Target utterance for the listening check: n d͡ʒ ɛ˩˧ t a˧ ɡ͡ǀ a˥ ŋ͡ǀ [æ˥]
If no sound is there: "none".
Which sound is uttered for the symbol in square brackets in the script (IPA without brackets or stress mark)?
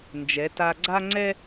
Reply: ɛ˥